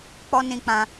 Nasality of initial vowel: oral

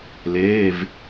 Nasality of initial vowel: oral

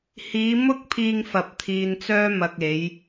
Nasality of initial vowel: oral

